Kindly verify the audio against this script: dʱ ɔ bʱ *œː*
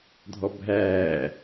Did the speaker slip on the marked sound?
yes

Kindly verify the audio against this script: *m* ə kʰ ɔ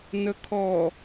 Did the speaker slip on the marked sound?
yes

